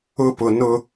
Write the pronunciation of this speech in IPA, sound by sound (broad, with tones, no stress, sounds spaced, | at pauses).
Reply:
ʊ˦ p ʊ˨ n ʊ˦